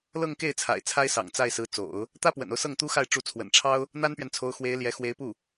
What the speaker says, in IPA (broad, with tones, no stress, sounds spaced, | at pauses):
l ɤ˥˧ ŋ k e˥˩ ɪ̯ t͡sʰ a̰˨˩ ɪ̯ t͡sʰ a˥ ɪ̯ s ɑ̰˨˩ ŋ t͡s a˥˩ ɪ̯ s ɹ̩˧˥ t͡s o̰˨˩˦ ʊ̯ | t̪ ä˥ p w ə̰˨˩ n o˦ ʊ̯ s ɤ˥˩ ŋ t̪ u˥ x a˥˩ ɪ̯ ʈ͡ʂ u˧˥ t͡sʰ w ə̰˨˩ n ʈ͡ʂʰ ɑ˥ ʊ̯ | n̪ a˥ n p ɥ ɛ˨ n t͡sʰ o˧˥ ʊ̯ x w e˧˥ ɪ̯ l j ɛ˧˥ x w e˧˥ ɪ̯ p u˥˩